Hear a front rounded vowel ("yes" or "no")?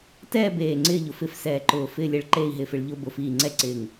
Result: no